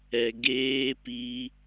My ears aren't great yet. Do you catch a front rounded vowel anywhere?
no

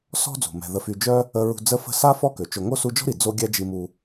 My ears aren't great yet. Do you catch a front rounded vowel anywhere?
yes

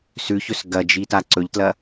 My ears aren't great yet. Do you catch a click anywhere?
yes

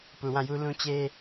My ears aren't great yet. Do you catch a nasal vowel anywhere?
yes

